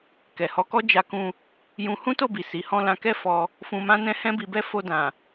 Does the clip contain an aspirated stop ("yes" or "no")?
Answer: no